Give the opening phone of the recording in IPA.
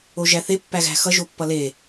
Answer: o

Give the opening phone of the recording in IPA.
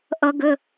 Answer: ʔ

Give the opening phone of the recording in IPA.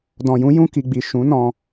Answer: d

